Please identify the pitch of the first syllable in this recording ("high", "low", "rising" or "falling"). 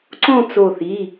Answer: falling